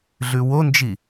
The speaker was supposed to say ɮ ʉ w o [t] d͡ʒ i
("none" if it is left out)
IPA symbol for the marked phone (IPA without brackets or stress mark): n